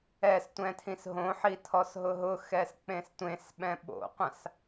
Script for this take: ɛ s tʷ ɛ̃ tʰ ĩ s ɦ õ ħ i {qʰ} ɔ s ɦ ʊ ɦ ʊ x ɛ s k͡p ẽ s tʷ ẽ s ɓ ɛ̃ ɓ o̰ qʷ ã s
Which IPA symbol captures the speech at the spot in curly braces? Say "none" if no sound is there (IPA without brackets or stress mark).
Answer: tʰ